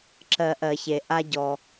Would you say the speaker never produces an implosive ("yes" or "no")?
yes